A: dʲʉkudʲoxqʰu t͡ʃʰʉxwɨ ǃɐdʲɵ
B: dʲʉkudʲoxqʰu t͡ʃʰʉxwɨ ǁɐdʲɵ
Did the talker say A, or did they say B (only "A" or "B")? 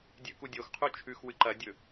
A